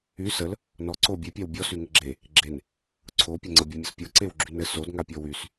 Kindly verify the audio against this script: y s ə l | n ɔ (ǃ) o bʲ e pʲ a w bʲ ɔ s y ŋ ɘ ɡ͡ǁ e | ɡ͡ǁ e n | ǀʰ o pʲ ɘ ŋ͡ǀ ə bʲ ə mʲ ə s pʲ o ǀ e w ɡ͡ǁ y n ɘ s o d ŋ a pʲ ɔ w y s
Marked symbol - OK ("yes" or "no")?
no